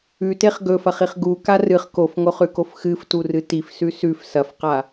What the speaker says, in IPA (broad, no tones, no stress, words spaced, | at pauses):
ʉteχ ɡɵfɐχiχ ɡuka rɨχ kofŋoχʉkof xɨfturɨ tifsʉ sʉf sɐfqa